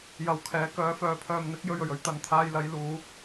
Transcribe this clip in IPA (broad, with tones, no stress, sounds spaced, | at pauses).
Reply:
j ɐ˨˥ w kʰ ɛː˨˥ k œː˨˥ f œː˨ pʰ œː˨ m n̪ ɪ˨˥ k̚ j ɵ˨ ɥ ɵ˨˩ ɥ ɵ˥ ɥ t̪ ɐ˨˧ n t̪ʰ aː˧ j l ɐ˨˥ j l uː˨˥